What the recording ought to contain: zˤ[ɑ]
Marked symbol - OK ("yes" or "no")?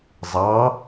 yes